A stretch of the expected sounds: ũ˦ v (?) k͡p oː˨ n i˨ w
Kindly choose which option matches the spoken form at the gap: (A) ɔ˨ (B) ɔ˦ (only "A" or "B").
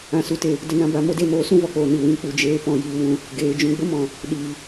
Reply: A